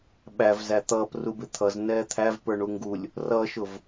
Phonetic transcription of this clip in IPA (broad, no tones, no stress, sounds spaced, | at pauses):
ɓ æ v z æ t̪ ʌː p r u b ɪ t̪ʰ ʌ z n ɛː t̪ʰ æ v p ə˞ ɳ u ŋ ɡ u lʲ | r ʌ ʃ ʊ v